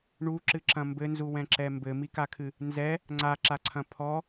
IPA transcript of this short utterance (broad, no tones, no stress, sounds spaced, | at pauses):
ɳ u ǁ ɨ ǁ ɐ̃ m b ɘ n z u w ɛ̃ ǁ ɛ m b ɘ m i k a kʰ ɨ | n z ɛ | ŋ͡ǀ a ǁ a ǀʰ ɐ̃ pʰ ɔ